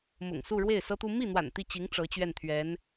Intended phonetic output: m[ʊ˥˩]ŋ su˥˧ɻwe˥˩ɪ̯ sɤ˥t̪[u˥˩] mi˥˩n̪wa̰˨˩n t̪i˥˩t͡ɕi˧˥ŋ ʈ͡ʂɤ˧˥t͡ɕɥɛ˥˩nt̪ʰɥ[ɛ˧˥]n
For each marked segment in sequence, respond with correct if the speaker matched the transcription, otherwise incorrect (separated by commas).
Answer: incorrect, incorrect, correct